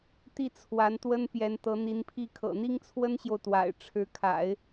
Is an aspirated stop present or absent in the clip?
present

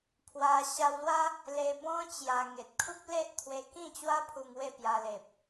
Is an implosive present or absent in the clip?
absent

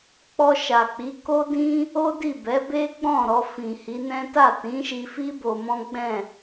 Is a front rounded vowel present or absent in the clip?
absent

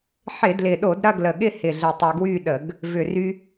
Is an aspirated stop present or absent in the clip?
absent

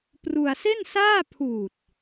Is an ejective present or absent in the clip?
absent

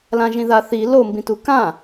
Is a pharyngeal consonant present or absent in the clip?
absent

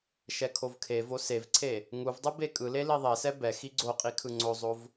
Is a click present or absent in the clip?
present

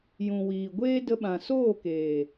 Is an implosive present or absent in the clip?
present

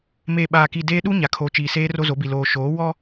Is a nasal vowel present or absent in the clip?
absent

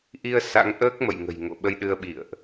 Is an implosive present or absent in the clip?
present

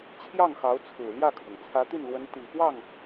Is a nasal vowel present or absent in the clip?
absent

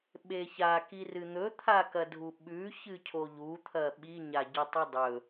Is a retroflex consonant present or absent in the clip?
absent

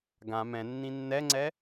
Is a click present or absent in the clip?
present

